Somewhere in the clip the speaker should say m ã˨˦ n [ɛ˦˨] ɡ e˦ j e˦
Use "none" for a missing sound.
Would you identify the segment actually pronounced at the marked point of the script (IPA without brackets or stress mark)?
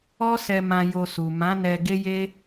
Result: ɛ˧